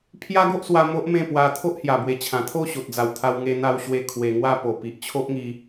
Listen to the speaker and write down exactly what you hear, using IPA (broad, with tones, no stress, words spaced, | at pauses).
pʰja˦ɡo˦ʔswa˧ mo˦ʔmẽ˥˧pwa˧ t̪ʰo˦ʔhja˨˩bwe˨˩ t͡ɕʰã˨˩t̪ʰo˥˧ɕo˨t̚d͡za˨˩w t̪ʰa˧wŋe˧n̪a˧w ɕwe˥˧ kʰwe˧ŋwa˦ po˨˩pi˨ʔt͡ɕʰo˦ʔŋi˧